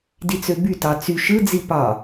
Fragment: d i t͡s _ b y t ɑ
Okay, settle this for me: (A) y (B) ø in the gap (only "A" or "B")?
B